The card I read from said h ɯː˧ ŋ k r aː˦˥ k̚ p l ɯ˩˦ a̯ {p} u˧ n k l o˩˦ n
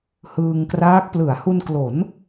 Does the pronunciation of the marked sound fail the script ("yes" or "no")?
yes